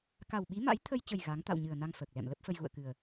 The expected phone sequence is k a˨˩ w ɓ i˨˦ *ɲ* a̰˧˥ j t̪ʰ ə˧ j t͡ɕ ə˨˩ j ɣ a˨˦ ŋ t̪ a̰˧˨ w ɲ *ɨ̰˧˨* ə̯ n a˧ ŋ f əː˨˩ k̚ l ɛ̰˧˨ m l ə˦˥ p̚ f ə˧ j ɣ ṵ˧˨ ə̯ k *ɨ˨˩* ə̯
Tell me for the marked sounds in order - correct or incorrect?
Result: incorrect: m, incorrect: ɨ˨˩, correct

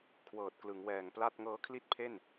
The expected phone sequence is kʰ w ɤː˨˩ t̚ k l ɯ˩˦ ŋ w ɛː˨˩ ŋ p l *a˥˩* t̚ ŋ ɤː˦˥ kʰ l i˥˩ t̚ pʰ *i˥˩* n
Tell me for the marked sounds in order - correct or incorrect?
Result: correct, incorrect: e˥˩

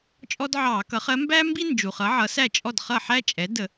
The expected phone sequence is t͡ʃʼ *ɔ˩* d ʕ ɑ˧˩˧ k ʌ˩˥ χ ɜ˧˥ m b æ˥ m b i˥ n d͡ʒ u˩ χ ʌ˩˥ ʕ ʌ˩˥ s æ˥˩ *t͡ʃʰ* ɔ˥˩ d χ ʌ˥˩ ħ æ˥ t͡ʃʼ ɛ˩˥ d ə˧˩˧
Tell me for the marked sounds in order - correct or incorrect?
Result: incorrect: ɔ˥, incorrect: t͡ʃʼ

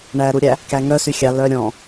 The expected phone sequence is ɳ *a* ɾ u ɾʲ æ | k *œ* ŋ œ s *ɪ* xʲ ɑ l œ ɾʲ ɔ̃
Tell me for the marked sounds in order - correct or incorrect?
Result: incorrect: æ, incorrect: æ, incorrect: y

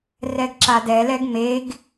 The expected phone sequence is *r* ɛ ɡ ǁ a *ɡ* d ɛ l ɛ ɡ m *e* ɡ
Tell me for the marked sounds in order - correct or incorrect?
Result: correct, incorrect: none, correct

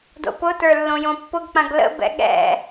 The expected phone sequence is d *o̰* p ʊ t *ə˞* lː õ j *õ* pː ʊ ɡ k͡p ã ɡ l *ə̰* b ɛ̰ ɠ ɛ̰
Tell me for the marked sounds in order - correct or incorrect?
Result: correct, correct, correct, correct

